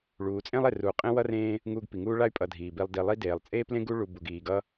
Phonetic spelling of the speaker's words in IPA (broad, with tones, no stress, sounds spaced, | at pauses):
ɭ uː˨ t͡sʼ ẽ˥ lˠ e˨ r u˨ qʼ ẽ˥ w ʌ˥ r ẽː˦ | ŋ uː˦ ɡ p i˩ ŋ uː˥ ɭ a˥ y̯ pʼ ʌ˨ dʱ iː˩ b i˨ lˠ d i˨ lˠ i˥ d eː˩ lˠ t͡sʼ eː˥ p l ẽ˥ ɡ u˥ ɭ u˨ b u˩ ɡ iː˩ ɡ ʌ˥